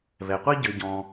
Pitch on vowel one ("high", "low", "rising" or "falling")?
low